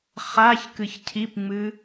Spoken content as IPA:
χ a ç k ɨ ç cʰ i p ŋ͡m ɨ

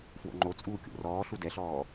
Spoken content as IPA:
f w o̰ ŋ͡ǃ o t͡sʼ uː kʲ o̰ r ɔː ɬ u d ɛ ɬ ɔː

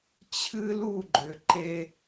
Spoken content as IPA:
t͡ɕʰ ɨ˦ l u˦˨ ɡ͡ǃ ʏ˨ ǃ e˦

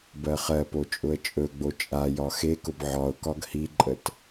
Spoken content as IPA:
b ɜ χ ɜ p o t͡ʃʼ ʊ ə̯ t͡ʃʼ ɵ ɡ͡b o t͡ʃʼ a j ɒ x e k ʊ b ʕ ɒ ʊ̯ k ɒ ɡ h i ǃʼ ə t

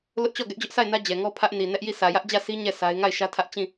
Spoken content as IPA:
l ʊ˦ ʔ t͡ɕ ɔ˦˨ ɡ ɛ˦ ʔ d͡ʑ ʊ˦ ʔ s a˦˨ ɪ̯ n ä˦ d͡ʑ ɛ˨ ŋ ɔ˦ pʰ ä˦ ʔ n i˨ n ɛ˦ ʔ j i˦˨ sʰ ä˨ j ä˦ ʔ d͡ʑ ä˦˨ sʰ i˦ ɲ ɛ˦˨ sʰ a˦ ɪ̯ ŋ a˦˨ ɪ̯ ʃ ä˦ tʰ ä˦ ʔ t͡ɕ ĩ˦˨

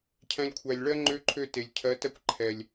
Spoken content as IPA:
cʰ æ̃˧ lʲ kʷʰ æ˨ lʲ ɭ ɜ˦ ŋ͡ǃ ø˦ ǃʰ ø˦˨ t e˨ lʲ cʰ ɜ˨˦ t ɜ˦ kʷ ǃʰ ɛ˨ lʲ

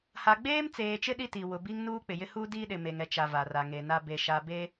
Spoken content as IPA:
h a˨ ɡ͡b eː˦ m t͡s eː˨ t͡ʃ ɪ˦ ɗ i˦ t i˨ w ʊ˨ b i˦ ŋ n uː˦ k͡p ɪ˨ j ɪ˦ h u˦ d i˦ ɗ ɪ˨ m e˨ ŋ ɛ˨ t͡ʃ a˨ v a˨ r a˨ ŋ e˨ n a˦ b e˦ ʃ a˦ b e˦

